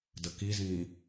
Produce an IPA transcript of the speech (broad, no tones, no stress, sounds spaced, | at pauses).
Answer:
d ə k i z ĩː